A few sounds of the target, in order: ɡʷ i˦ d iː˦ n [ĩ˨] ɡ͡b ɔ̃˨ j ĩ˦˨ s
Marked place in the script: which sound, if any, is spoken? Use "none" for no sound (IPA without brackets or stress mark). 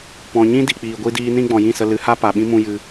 ĩ˦